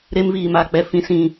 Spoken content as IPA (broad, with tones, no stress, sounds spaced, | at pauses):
ɾ e˧ m v iː˨ m aː˨ k͡p ɛ˧ f ĩ˨ s ĩ˨